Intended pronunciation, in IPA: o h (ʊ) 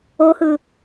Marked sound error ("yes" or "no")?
yes